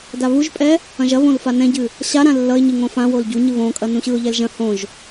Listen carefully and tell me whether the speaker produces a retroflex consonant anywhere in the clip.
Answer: no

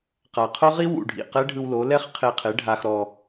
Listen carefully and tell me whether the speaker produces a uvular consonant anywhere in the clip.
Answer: yes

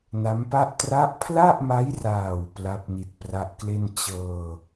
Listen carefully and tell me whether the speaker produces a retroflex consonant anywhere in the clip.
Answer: no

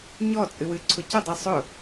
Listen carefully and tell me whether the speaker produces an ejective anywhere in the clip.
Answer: yes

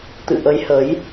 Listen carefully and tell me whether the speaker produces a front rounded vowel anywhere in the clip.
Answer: no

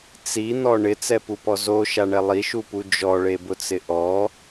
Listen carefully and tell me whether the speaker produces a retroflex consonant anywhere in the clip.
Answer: yes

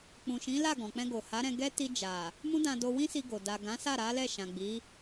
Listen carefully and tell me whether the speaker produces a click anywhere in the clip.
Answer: no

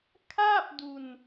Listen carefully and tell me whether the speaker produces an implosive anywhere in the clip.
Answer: no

